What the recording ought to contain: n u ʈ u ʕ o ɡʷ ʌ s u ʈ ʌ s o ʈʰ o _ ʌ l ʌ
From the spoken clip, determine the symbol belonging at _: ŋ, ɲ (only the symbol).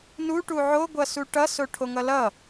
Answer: ŋ